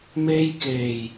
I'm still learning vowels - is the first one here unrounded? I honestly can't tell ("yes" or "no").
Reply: yes